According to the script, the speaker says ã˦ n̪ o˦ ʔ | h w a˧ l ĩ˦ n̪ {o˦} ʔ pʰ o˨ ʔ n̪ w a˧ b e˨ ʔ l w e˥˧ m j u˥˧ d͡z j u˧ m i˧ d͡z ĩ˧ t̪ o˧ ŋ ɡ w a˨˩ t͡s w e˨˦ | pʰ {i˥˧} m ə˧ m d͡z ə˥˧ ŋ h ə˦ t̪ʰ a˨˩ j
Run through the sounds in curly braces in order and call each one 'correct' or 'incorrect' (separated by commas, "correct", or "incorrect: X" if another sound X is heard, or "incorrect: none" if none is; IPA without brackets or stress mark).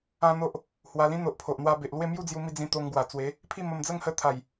incorrect: o˨, correct